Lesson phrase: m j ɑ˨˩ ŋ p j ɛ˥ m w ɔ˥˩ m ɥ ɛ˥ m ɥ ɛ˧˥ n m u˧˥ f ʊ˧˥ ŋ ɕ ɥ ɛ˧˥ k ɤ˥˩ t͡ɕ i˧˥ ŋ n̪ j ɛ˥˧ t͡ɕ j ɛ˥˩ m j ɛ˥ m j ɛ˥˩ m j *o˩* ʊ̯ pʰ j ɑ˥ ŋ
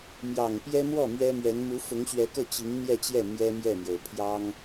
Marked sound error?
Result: no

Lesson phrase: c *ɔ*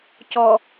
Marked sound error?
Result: no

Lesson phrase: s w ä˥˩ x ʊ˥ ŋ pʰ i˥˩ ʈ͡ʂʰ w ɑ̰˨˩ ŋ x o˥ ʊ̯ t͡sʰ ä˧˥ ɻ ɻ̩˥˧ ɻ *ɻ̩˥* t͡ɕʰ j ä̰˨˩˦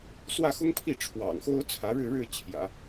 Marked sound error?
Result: yes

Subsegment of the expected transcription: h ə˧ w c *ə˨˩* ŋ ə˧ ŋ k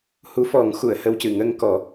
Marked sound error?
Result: yes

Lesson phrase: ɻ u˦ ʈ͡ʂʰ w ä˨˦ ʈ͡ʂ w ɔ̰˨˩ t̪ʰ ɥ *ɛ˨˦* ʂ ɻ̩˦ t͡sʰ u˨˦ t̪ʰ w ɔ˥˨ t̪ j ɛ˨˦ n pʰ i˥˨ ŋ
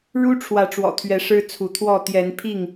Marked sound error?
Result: no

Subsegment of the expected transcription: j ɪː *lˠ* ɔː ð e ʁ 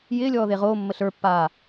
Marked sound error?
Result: yes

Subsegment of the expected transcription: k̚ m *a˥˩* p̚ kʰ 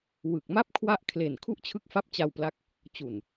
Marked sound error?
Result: no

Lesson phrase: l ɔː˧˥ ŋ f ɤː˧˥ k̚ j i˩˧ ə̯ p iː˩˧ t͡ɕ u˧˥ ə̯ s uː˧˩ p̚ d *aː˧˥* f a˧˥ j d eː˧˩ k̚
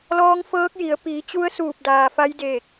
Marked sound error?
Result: yes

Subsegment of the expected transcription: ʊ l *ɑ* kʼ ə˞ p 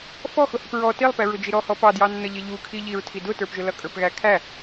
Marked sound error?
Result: yes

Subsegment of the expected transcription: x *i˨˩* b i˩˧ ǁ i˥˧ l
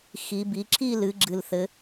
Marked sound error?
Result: yes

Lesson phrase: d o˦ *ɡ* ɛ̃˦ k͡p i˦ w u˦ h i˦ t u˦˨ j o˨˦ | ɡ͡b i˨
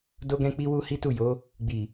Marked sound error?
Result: no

